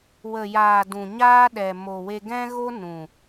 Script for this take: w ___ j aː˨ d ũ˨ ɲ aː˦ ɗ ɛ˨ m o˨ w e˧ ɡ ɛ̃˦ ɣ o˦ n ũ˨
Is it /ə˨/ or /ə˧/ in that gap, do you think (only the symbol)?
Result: ə˨